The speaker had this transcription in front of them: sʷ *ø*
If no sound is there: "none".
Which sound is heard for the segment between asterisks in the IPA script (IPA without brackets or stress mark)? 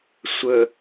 ə